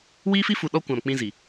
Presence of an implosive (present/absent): present